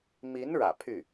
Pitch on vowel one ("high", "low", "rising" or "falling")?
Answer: rising